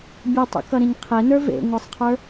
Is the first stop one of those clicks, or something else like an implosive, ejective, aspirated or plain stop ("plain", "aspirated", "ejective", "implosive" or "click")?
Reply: plain